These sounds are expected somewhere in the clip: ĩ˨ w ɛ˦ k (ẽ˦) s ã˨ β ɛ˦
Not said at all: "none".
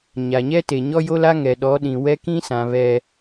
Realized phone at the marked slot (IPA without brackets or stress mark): ĩ˦